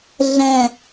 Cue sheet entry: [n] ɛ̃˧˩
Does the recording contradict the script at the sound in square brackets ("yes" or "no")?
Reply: yes